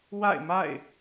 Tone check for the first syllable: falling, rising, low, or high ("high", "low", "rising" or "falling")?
falling